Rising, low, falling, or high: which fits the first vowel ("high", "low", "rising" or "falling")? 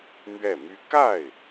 falling